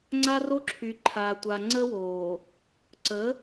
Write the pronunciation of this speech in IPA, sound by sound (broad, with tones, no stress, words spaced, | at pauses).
ŋ͡ǀa˦ ro˦ǁʰy˨ǃʰaː˨tʷa˨ ŋ͡ǀə˦woː˨ | ǀə˨˦